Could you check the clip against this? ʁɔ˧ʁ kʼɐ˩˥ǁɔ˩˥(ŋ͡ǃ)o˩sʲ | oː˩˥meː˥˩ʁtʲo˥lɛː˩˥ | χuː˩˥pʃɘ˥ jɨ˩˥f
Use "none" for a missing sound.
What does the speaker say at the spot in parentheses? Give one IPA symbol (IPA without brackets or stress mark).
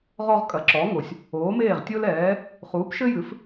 ŋ